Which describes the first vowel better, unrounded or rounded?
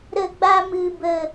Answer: unrounded